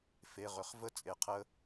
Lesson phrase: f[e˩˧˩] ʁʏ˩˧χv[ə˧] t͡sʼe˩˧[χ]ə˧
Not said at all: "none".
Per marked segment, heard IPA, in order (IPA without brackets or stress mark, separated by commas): e˩˧˩, ə˦˥, qʰ